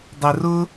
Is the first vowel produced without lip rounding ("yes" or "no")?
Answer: yes